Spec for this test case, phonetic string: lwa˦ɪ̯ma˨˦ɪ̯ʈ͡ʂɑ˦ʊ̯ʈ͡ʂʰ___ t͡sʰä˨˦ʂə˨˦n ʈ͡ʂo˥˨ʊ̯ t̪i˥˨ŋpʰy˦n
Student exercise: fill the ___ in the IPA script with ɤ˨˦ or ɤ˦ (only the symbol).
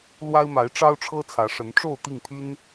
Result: ɤ˦